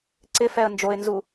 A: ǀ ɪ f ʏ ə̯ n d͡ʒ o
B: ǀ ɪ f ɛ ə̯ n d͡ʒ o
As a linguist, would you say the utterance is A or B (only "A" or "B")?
B